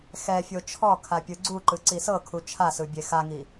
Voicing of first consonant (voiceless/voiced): voiceless